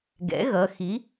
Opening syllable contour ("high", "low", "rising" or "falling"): rising